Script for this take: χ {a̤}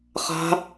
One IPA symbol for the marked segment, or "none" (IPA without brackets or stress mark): a̤